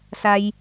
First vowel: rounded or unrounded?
unrounded